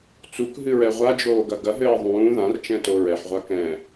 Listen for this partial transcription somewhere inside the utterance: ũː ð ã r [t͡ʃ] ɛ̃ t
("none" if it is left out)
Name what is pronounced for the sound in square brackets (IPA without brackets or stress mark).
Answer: t͡ʃ